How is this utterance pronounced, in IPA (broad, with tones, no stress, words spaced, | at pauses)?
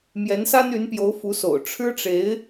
mjɛ˧˥nsa˥ny˧˥npjo˧˥ʊ̯ fu˧˥so̰˨˩ʊ̯ ʈ͡ʂʰɻ̩˥ʈ͡ʂe˧˥ɪ̯